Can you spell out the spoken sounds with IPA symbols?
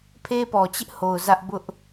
pʰ e˦ p ɔ˨ t͡ɕ ɪ˦ ʔ h o˨ ʊ̯ z ä˦ ʔ b ʊ˦ ʔ

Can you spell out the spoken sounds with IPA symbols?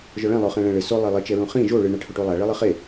ʒ ɔ ɭ ɛ̃ lˠ o χ ɛ̃ ɭ ɛ̃ ɭ ɘ s o lˠ e lˠ ɘ t͡ʃ ɛ ɹ ũ χ ĩ ʒ o ɭ ɨ ɳ a ʈʰ o ʈ u lˠ a ɭ i lˠ ɘ χ e

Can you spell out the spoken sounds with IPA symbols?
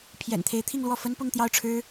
pʰ j ɛ̰˨˩ n t̪ʰ e˧˥ ɪ̯ t̪ʰ i˥˧ ŋ l w ɔ˥˩ f ə˥ n p ʊ˥˧ ŋ t̪ j ɑ˥˩ ʊ̯ ʈ͡ʂʰ ɻ̩˥

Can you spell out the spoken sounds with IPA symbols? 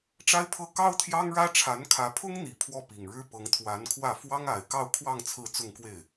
ʈ͡ʂ a˥ ɪ̯ pʰ ɤ˥˩ k ɑ˥ ʊ̯ t̪ʰ j ɑ˥ ŋ ɻ ä˥ ʈ͡ʂʰ a˧˥ n kʰ ä˧˥ pʰ ʊ˥ ŋ n̪ i˨˩ pʰ w ɔ˥˩ p i˨˩ ŋ ɻ ɻ̩˥ p ɤ˧˥ ŋ t̪ʰ w a˧˥ n kʰ w ä˥˩ f w ɑ˥ ŋ a˨˩ ɪ̯ k ɑ˥˧ ʊ̯ kʰ w ɑ˥˧ ŋ t͡sʰ ɹ̩˥˧ t͡s ʊ˥˧ ŋ k w e˥˩ ɪ̯

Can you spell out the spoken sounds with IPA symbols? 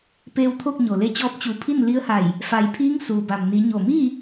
p eː˧ w t̪ʰ o˥˨ k̚ ɲ o˩ l e˧ t͡ɕ ɔː˧ p̚ t͡ɕ u˩˧ pʰ i˥˨ n l i˧˥ ə̯ h a˧˩ j | f a˩˧ j pʰ iː˧˥ ŋ s uː˩ b a˩ m n i˩˧ ɲ o˧˩ m iː˥˨

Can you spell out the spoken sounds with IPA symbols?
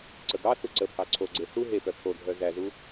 ǀ ə ɡ ɑ θ u ǀ ə pʰ ɑ ǀʰ o ɡ͡ǀ e s u ɦ e p œ pʰ o dʱ œ z æ z u

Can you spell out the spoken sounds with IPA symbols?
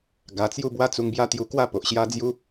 ɡ a˧ t͡s j u˦ b w a˦ t͡s u˧ ŋ b j a˦ t̪ j u˧ k w a˥˧ p o˨ ʔ ɕ j a˦ d͡z j u˦

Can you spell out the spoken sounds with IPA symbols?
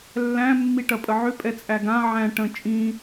lː æ̃ mː i ʈ ɐ pʼ ə ʕ ʏ pʼ ɛ t͡sʼ æ ɡ ã ʕ æ̃ ʈ ə̃ t͡ʃʼ ĩ

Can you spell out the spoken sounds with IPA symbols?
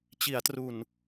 t͡ɕ i˩˦ a̯ t r u˨˩ n

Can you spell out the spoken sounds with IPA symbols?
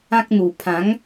ã˦ k̚ n̪ u˨˩ pʰ ã˨˦ ŋ

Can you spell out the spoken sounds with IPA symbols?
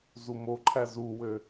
z u m o ǃʰ æ z u w ø

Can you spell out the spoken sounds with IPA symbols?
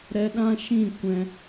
ɾ ɛ˧ ɗ ã˦ ʃ ĩ˦˨ kʷ ɛ̃˧

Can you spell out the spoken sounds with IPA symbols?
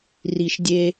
r i˨ ʃ dʲ e˧

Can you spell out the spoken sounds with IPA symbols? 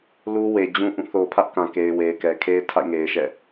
l u˦ w e˨ d͡ʑ ũ˦ ʔ ũ˦˨ θ o˨ pʰ ä˦ ʔ k ã˨ k e˨ ɪ̯ w e˨ ɪ̯ k ɛ˨ kʰ e˦ ɪ̯ tʰ a̰˦˨ ɪ̯ ŋ e˨ ɪ̯ ʃ ɛ̰˦˨

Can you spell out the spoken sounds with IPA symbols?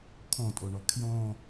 kʰ ɔ̃ tʼ o ɳ ɔ kʰ j ɔ̃

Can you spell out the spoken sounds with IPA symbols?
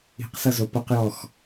i̤ q s ʌ z o p ʌ q j ɔ x

